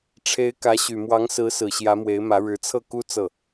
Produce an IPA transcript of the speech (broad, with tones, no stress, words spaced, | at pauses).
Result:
ʈ͡ʂʰe˧˥ɪ̯kä˧˥ɕy˨˩ mwɑ˧˥ŋsɹ̩˧˥sɹ̩˨˩ ɕjä˧˥mwe˧˥ɪ̯mä˧˥ ɻɻ̩˧˥t͡sʰɤ˥˩ku˥ t͡sɤ˥˩